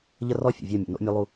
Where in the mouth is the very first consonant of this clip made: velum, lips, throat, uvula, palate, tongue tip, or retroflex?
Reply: palate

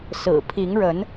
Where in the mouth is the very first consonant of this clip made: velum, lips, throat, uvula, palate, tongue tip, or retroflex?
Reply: tongue tip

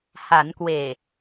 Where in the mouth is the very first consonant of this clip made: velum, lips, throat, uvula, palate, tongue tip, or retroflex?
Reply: throat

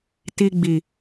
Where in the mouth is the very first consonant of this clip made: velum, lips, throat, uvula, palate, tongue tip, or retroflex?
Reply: tongue tip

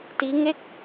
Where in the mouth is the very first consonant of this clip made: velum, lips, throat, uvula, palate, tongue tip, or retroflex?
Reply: tongue tip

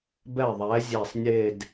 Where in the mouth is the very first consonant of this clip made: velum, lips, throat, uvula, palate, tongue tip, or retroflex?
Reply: lips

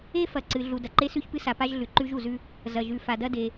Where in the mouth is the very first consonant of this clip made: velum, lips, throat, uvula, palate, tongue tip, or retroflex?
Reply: lips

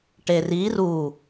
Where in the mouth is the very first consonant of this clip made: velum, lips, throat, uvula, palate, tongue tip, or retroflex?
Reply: retroflex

